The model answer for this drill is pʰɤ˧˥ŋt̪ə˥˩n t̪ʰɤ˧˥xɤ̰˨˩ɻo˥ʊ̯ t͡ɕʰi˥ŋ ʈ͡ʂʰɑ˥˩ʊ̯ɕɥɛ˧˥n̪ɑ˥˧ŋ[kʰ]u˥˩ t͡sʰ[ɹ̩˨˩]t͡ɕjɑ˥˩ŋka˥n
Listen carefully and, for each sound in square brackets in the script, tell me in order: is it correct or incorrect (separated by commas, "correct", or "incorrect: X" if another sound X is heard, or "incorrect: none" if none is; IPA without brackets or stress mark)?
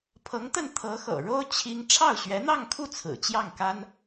correct, correct